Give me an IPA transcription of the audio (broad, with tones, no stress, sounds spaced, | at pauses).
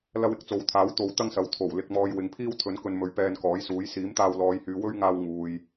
l ɐ˧ w ɪ˨ k̚ t͡s o˨˥ w t̪ʰ aː˨˥ w t̪ o˨˧ w t̪ ɐ˥ ŋ s ɐ˨ w t̪ʰ o˨˩ w l ɪ˨ k̚ m ɔː˨ j w ɪ˨ ŋ pʰ iː˥ w t̪ʰ ɵ˨˥ n k ɵ˧ n m ɵ˨˥ ɥ p ɛː˧ n k ɔː˨˥ j s uː˨˥ j s iː˨˥ m t̪ aː˧ w l ɔː˨˧ j h yː˨˧ w ɵ˥ ɥ ŋ aː˧ w ŋ uː˨ j